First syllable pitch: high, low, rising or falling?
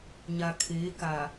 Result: low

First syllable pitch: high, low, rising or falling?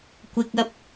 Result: low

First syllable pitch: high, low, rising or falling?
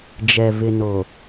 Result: low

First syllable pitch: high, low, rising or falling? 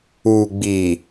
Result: low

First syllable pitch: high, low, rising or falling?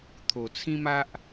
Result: low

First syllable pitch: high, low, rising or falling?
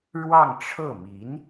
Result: falling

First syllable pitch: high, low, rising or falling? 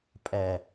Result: low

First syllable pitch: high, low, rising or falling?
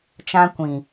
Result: high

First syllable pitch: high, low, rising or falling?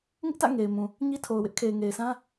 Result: high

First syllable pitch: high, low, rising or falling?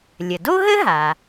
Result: low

